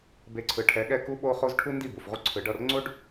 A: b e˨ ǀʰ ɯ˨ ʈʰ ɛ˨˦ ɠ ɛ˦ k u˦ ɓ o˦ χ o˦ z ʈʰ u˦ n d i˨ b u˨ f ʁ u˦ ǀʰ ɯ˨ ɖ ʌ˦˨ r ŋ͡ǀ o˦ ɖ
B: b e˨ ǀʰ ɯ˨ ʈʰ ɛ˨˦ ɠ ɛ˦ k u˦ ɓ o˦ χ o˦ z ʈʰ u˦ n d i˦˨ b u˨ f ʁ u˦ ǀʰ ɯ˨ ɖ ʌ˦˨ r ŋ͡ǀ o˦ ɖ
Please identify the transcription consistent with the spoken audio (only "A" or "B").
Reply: B